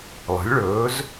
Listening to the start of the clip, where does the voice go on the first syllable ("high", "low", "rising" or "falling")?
rising